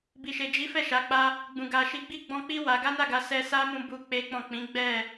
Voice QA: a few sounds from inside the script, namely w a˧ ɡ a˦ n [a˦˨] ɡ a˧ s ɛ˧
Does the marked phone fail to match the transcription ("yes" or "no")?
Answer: no